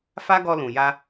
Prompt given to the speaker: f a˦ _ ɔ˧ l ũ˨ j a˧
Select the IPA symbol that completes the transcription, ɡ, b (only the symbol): ɡ